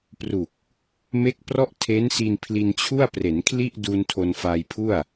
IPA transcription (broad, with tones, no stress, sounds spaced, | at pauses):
p r u˨˩ k̚ | m e˥˩ k̚ p r ɔ˥˩ ʔ tʰ e˦˥ n s i˧ n pʰ l i˧ n t͡ɕʰ u˥˩ a̯ p r e˩˦ n kʰ l i˥˩ ʔ d u˧ n tʰ o˧ n f a˧ j pʰ u˥˩ a̯